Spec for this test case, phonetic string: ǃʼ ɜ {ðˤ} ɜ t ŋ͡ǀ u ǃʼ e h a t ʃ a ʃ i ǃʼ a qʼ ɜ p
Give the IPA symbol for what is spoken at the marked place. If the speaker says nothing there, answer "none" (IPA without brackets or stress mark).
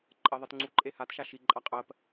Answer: ðˤ